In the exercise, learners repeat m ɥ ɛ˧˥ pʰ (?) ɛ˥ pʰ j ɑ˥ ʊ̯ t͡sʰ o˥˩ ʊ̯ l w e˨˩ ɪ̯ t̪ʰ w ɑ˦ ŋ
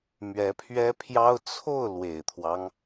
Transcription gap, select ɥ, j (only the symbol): ɥ